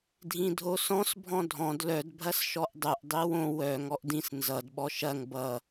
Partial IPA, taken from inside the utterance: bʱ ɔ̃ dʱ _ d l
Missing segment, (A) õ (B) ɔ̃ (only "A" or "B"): B